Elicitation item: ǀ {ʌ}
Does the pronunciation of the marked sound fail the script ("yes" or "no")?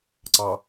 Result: yes